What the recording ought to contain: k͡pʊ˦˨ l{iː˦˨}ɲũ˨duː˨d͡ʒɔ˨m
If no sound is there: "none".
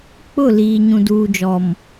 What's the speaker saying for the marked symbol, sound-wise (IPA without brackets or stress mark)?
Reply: iː˨